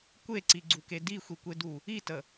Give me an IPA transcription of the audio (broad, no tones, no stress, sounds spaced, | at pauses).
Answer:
kʷ e ǀ i ɡ͡ǀ u k e d i xʷ i kʷ e d u | i t ə